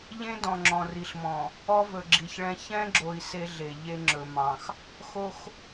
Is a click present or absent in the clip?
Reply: present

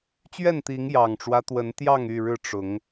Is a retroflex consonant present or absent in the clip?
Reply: present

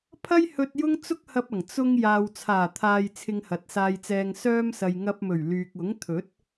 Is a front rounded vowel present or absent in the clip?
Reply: present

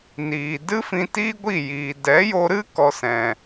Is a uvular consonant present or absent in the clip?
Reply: absent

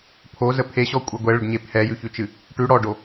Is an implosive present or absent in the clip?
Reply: absent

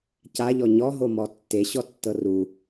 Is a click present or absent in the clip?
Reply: absent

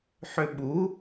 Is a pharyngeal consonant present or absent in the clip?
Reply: present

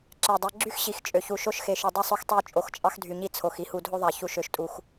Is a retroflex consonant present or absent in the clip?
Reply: absent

